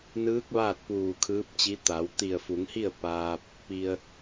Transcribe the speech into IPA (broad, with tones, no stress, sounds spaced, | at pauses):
n ɯː˧˥ k̚ ʋ aː˥˨ t̚ p uː˧˩ kʰ ɯː˧˥ p̚ t͡ɕ i˧˥ t̪ a˩˧ w t̪ i˧˩ ə̯ f u˩˧ ŋ h i˥˨ ə̯ p aː˧ p̚ | p i˧ ə̯